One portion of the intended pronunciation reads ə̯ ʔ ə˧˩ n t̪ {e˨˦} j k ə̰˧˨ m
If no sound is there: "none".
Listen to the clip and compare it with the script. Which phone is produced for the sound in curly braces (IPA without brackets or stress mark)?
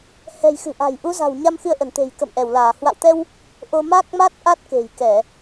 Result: e̤˨˩